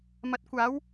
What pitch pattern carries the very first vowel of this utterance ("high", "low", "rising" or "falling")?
rising